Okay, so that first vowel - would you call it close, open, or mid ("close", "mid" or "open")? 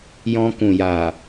mid